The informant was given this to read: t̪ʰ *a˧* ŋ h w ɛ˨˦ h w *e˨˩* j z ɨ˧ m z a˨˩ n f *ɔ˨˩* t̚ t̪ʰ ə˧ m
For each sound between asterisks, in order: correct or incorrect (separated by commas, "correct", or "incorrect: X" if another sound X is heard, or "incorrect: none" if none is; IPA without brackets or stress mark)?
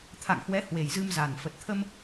incorrect: a̰˧˨, correct, incorrect: ə˨˩